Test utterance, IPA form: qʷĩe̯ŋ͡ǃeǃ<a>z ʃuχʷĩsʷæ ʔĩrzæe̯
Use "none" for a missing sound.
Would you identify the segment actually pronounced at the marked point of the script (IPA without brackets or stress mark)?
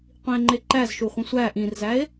æ